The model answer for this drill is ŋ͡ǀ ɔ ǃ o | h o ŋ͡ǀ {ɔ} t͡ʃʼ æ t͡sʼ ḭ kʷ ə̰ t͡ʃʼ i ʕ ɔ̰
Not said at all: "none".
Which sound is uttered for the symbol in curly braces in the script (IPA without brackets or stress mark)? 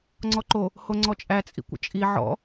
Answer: ɔ